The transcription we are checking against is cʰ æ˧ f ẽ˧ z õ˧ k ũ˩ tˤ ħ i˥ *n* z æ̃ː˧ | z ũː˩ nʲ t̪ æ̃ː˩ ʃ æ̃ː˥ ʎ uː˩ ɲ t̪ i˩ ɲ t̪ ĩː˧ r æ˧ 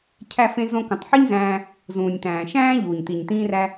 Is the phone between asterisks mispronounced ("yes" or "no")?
yes